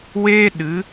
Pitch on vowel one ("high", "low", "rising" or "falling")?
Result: high